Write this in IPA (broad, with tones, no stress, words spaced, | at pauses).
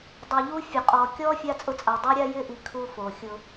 dˤu˨ʎu˦fʲʊ˨ qʼɔ˨kʲɔ˦ fʲa˦t͡sʼʊ˦t͡sʼa˨ dˤu˦ɾʲa˦jɪ˦ʔi˨ kʰu˦fo˨xʲʊ˦